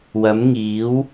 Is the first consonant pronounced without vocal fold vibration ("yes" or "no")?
no